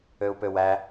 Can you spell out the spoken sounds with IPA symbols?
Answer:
ø u̯ p ø w æ

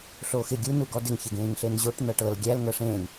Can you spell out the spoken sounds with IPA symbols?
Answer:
ɬ oː x ɪ ɡʲ u n u ɡ ɔ d ɪ ŋ ç ɪ ɡ ẽː ŋ ɬ e n ʑ o ʈ n ɤ ʈ ɤ l ɡʲ æ l ŋ ɤ ʂ ẽː ŋ

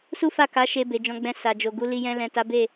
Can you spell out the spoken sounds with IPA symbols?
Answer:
s u˦ f a˦˨ k a˨˦ ʃ e˧ b e˨ d͡ʒ ɔ̃˨˦ ɡ͡b ɛ̃˧ s a˨ d͡ʒ o˨ ɡ u˨˦ l i˧ j ɛ̃˧ l ɛ̃˨ t a˨˦ b e˦˨

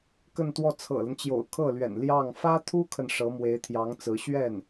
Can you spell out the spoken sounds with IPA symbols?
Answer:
k ə˥˧ n t̪ w ɔ˥˩ t͡sʰ ɤ̰˨˩ l ə˦ n t͡ɕ j o̰˨˩ ʊ̯ kʰ ɤ˥˩ l ɥ ɛ̰˨˩ n l j ɑ˥˩ ŋ f ä˥ t̪ʰ u˥ kʰ ə˨ n ʂ ɤ˧˥ m w e˧˥ ɪ̯ t̪ʰ j ɑ˧˥ ŋ t͡s ɹ̩˧˥ ɕ ɥ ɛ˥˩ n

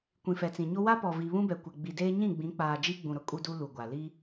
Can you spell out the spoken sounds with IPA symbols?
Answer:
kʷ ĩ˨ f ɛ˨ t͡s ĩ˨ ɲ o˦ w a˦ p ɔ˨ v i˨ β ũ˦ b ɛ˨ kʷ ɛ˨ ɡ͡b i˨ d eː˦ ɲ ĩ˦˨ ɡ͡b ĩ˨˦ k͡p aː˨ d͡ʒ i˦ ɡ͡b ũ˨ ɾ ʊ˦ kʼ u˦ d u˦ l u˨ ɡʷ a˨ l i˦

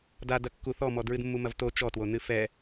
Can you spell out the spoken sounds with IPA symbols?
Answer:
d a d ɐ kː u θ ɔ m ɔ d ɹ ɨ d mː u m ɐ v t o t͡ʃ ɔ t w o n ɨ f ɛ

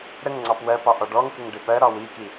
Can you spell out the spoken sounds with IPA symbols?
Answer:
ɾ ə ŋ ŋ͡ǀ ɑ p w ɜ p ɑ ʔ ɔ ɖ ɔ ŋ k ɪ ŋ ɖ ɪ p ɜ ɾ ɒ w i k i

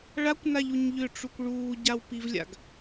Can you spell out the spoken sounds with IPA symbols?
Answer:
ɭ a kʷ n a ʎ u ɲ ʎ ʏ ʈ͡ʂ u kʷ ɭ uː ɟ a w p i v lʲ a̰ ɡ

